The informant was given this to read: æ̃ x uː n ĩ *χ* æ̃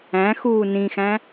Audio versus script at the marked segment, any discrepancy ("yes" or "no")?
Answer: yes